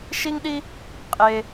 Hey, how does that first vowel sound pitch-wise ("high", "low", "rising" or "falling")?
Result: high